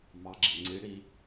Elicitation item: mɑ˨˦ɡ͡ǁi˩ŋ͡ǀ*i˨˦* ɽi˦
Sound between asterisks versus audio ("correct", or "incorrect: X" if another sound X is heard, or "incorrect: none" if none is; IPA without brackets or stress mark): correct